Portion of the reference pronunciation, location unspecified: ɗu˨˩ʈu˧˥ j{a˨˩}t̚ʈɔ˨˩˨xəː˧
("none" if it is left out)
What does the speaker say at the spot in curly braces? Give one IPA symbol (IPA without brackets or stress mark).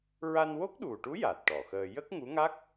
a˨˩